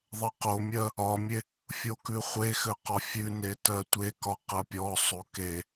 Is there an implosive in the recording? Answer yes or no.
no